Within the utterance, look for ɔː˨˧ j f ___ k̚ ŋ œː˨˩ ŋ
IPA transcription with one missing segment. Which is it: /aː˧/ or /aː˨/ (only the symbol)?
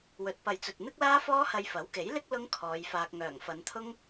aː˧